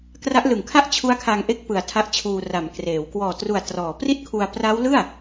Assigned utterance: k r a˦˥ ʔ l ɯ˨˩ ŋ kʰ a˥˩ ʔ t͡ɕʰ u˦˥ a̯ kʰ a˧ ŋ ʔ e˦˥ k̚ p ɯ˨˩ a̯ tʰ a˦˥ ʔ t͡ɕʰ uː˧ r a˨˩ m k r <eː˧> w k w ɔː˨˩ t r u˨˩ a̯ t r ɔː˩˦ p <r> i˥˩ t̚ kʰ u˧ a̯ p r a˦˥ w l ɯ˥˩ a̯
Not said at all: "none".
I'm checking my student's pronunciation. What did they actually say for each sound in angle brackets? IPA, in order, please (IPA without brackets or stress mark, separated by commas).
eː˩˦, r